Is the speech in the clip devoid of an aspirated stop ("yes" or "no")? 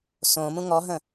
yes